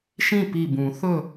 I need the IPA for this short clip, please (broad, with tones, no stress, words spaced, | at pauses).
ʃĩ˥˨pi˧˩bũ˨˩˦ θɵ˥˨